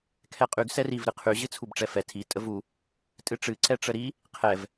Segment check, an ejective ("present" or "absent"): present